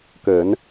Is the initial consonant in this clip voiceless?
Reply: yes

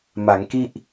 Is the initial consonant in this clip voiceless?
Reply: no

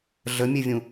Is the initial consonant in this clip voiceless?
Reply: no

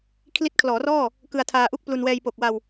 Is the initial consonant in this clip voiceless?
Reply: yes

